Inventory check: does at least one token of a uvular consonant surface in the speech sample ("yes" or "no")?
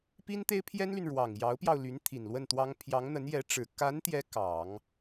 no